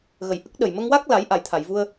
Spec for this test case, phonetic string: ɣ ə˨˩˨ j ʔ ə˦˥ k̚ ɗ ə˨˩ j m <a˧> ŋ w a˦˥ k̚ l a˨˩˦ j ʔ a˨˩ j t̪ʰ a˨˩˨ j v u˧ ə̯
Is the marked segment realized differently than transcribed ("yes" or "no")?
yes